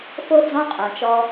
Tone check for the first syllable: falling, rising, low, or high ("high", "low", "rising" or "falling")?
high